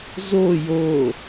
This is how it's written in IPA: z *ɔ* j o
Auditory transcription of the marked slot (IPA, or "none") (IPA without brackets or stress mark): o